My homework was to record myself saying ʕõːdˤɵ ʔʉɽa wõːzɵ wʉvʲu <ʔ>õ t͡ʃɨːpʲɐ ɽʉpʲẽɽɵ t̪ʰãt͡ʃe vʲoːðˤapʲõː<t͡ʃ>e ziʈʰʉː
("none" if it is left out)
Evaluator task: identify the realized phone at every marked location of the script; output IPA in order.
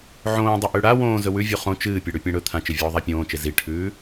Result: χ, t͡ʃ

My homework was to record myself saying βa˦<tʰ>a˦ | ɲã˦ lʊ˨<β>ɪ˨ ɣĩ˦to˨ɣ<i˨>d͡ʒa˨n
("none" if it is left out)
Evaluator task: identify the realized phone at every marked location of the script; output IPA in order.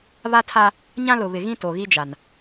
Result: tʰ, β, i˦

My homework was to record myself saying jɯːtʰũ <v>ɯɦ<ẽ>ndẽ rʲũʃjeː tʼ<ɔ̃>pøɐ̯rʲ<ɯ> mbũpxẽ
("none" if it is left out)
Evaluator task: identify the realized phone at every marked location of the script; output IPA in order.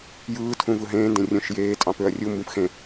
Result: v, ẽː, ɑ̃, u

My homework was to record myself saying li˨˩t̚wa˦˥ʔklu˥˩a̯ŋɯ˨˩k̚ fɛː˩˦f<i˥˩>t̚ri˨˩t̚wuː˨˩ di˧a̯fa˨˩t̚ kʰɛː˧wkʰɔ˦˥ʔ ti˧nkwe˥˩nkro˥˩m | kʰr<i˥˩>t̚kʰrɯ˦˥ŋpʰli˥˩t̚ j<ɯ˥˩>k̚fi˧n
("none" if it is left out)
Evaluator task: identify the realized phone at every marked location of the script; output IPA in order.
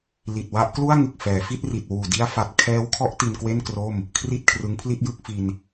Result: i˥˩, i˥˩, ɯ˥˩

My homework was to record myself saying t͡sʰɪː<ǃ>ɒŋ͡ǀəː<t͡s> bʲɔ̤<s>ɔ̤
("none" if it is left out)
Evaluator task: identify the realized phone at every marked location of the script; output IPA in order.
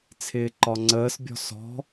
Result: ǃ, s, s

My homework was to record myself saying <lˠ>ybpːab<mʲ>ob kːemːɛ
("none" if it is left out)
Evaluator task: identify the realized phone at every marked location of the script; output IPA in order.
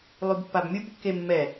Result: lˠ, mʲ

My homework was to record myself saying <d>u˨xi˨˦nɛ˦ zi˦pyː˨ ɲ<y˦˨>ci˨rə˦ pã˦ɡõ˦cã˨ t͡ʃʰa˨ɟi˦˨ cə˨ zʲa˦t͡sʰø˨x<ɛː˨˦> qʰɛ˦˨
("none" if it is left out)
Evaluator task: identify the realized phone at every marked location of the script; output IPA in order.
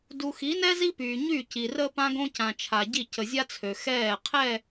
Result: d, y˦˨, ɛː˦˨

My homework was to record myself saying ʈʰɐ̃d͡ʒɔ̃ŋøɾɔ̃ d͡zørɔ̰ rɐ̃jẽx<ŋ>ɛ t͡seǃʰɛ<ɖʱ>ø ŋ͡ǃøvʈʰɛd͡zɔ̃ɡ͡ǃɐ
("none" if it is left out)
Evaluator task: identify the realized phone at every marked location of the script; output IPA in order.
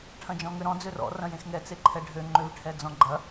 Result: ŋ, ɖʱ

